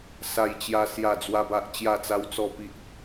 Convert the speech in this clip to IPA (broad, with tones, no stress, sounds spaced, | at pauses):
s a˥˧ j t͡ɕ j a˦ s j a˥˧ d͡z w a˦ b a˦ ʔ t͡ɕ j a˥˧ t͡s a˦ w t͡s ɔ˥˧ p i˦ ʔ